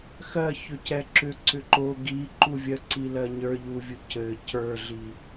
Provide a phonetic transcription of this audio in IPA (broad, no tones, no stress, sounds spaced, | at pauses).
x ɜ ç ʏ c ɛ ǁ ʏ ǀ ʏ ǃ o ɡ i ǃ u vʲ ɜ ǀ i l ɜ ɲ ə˞ ʎ u vʲ u c ɘ c ə˞ ɮ i